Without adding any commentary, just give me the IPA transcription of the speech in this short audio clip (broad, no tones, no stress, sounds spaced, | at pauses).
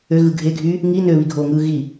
ø ɣ ɯ ɡʱ e ɡʱ yː | ŋ i n ø β i ɡʱ oː ŋ ɯː ɣ i